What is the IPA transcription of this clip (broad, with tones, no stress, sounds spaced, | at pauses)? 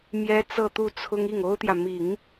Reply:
m j ɛ˥ t͡s ɤ˥˧ t̪ u˥˩ t͡sʰ ʊ˥ ŋ i˥˩ ŋ o˥ ʊ̯ t̪ j ä˨ m i˨˩˦ ŋ